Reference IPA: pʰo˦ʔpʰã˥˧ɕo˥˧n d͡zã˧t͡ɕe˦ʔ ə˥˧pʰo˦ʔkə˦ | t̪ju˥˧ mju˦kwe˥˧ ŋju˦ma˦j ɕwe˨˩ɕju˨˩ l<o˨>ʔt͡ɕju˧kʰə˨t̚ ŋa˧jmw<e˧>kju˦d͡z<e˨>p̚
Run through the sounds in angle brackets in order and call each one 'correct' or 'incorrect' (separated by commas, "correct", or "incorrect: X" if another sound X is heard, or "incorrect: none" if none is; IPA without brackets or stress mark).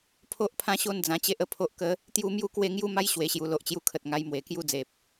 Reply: correct, incorrect: e˨˩, correct